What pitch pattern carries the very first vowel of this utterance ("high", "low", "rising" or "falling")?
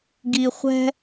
low